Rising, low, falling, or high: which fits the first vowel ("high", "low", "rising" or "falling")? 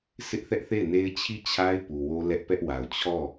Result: high